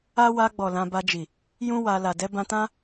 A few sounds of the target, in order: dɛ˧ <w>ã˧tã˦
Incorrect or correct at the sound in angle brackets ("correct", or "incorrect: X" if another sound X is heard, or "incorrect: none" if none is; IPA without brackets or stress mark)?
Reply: incorrect: b